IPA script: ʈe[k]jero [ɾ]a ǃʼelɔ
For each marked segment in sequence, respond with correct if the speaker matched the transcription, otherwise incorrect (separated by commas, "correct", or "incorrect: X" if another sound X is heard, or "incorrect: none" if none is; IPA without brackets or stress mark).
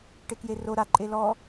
correct, correct